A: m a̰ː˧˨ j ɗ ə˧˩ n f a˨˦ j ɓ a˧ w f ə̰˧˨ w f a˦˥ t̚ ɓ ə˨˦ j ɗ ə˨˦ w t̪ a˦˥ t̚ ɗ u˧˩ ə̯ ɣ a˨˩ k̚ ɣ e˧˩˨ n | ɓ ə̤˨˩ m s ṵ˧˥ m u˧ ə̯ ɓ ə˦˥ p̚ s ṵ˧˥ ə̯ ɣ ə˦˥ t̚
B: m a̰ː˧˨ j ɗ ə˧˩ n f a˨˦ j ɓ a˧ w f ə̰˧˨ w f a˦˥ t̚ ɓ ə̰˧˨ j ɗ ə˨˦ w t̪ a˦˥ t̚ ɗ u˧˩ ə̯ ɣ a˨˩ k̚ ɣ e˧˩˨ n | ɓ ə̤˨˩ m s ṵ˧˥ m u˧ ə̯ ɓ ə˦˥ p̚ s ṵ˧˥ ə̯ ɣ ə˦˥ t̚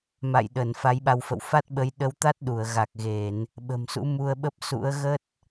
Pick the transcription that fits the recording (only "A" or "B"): A